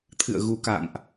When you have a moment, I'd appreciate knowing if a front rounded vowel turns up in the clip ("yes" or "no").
no